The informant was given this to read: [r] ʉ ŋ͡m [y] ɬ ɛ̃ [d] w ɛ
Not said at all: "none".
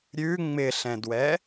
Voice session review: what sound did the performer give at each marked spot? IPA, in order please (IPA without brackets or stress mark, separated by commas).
ɾʲ, ɪ, d